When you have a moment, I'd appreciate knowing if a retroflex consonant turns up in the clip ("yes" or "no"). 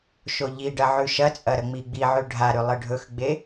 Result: yes